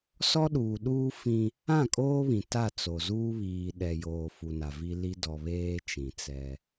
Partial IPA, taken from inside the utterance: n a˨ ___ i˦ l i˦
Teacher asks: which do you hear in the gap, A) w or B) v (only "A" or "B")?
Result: B